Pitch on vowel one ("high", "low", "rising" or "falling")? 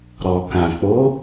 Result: low